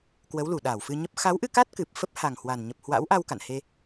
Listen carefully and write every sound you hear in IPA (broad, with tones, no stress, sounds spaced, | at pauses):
k w ə˨˦ w l u˧˩ ɗ aː˧˩ w f ɨ˧ ɲ ə˦˥ p̚ x a˨˦ w ʔ ɨ˧ k a˦˥ t̚ k ɨ˨˩ p̚ f ə˦˥ p̚ h a˨˩ ŋ h w a˨˩ n ɲ ə˨˩ p̚ h w a̰˧˥ w ʔ a˧ w k a̰˧˨ n h e˧